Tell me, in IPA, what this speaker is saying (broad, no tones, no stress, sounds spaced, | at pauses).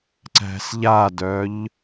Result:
ǀ æ̤ s ʎ a d œ ʎ